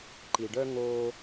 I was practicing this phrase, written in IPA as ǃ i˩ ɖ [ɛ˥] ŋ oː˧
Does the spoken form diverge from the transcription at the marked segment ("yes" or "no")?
yes